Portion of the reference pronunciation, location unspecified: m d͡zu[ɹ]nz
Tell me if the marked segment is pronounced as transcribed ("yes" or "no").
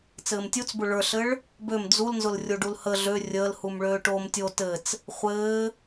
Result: no